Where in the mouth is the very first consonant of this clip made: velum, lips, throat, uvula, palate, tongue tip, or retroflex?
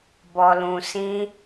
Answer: lips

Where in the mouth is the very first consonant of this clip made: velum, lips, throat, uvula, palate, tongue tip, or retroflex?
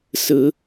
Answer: tongue tip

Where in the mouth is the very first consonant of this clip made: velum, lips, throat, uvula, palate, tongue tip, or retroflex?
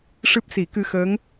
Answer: retroflex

